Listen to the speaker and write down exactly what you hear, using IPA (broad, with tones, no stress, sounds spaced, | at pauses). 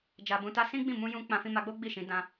d͡ʒ a˧ b ũ˧ t a˦ s ĩ˦ ɡ͡b ĩ˦˨ m ũ˧ j ũ˧ k͡p ã˧ f ĩ˧ m a˧ ɡ͡b o˦ ɡ͡b i˦˨ ʃ ĩ˨˦ d ã˧